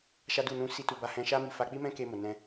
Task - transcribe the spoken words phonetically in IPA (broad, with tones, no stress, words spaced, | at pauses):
ʃa˦du˦˨ nũ˧ si˦tu˧ ba˧hɛ̃˧ʃa˦mi˧ fa˧k͡pi˦mɛ̃˦ke˧ mo˨nɛ̃˧